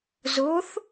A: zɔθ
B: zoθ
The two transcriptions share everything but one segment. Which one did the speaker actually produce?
B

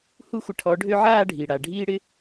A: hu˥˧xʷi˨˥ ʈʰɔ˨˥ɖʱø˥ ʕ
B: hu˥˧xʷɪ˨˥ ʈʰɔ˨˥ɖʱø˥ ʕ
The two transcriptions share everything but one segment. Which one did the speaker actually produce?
B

